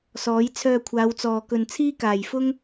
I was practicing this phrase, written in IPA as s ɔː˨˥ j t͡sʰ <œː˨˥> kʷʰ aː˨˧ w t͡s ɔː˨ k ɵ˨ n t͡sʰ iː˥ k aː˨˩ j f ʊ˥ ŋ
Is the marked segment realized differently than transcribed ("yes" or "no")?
yes